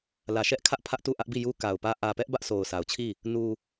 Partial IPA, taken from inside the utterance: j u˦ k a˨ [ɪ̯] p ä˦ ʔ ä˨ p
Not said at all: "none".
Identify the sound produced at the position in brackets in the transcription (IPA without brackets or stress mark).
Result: ʊ̯